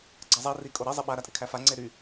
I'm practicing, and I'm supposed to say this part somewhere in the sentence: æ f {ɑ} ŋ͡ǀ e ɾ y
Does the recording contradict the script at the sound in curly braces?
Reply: yes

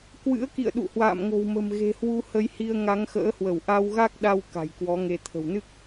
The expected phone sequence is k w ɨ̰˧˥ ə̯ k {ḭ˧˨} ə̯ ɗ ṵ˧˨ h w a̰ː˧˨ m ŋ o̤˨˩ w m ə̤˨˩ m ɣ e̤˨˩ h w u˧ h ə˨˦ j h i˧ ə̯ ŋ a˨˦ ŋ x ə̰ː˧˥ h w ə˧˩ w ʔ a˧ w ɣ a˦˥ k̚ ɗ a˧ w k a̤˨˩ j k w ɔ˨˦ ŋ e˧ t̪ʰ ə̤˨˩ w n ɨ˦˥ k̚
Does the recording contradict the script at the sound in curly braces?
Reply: no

